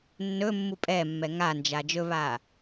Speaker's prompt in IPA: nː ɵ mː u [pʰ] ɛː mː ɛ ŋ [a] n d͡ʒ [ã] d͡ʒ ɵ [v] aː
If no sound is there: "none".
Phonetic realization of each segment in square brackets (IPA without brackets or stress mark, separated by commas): pʼ, a, a, β